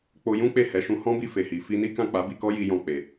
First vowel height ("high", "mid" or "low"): mid